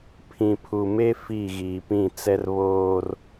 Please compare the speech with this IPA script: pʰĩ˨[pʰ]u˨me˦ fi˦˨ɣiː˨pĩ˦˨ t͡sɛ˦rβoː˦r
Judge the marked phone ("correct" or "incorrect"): correct